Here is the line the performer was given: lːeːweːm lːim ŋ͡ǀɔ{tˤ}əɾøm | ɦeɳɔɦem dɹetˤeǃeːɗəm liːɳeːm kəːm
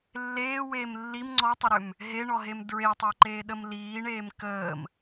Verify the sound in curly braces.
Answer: correct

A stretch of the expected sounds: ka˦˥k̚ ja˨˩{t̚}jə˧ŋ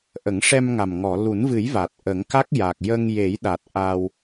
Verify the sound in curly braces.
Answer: incorrect: k̚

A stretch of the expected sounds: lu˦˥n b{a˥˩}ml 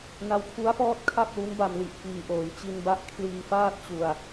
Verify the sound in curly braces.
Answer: incorrect: a˧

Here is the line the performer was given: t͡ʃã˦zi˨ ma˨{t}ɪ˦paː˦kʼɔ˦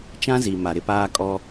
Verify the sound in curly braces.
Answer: incorrect: ɾ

